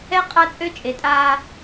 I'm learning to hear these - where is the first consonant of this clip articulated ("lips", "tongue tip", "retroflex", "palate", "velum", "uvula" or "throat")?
uvula